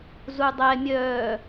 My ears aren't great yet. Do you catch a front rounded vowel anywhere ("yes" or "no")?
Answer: yes